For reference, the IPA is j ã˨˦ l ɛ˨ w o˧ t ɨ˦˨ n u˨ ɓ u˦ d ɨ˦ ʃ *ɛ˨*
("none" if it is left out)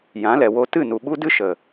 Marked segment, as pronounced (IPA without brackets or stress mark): ə˨